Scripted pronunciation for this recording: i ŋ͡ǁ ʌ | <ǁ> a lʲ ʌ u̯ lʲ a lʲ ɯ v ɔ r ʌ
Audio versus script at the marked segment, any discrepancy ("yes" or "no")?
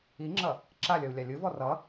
no